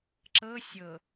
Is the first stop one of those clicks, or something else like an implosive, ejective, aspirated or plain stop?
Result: click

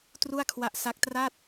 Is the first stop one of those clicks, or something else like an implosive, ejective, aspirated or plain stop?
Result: plain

